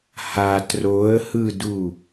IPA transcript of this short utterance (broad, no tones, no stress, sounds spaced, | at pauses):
h a t r o ə̯ h ɯ d u